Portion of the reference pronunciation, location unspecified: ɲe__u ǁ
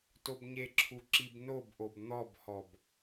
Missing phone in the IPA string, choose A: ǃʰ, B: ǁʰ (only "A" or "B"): B